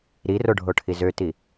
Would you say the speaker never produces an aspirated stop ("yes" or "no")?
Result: no